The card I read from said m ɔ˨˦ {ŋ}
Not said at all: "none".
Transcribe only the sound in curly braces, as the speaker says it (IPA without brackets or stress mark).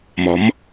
m